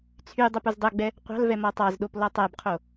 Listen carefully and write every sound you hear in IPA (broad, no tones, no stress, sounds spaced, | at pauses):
t͡sʰ y dˤ u p u z dˤ œ ɡ͡b ɛ | qʷ ɑ̤ l v ɛ m ɔ tˤ ɑ z ɗ o p l ɔ tˤ æ b qʰ o